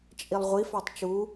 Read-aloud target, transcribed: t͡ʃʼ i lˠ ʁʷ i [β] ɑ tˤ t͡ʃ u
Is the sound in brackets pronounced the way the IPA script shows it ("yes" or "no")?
no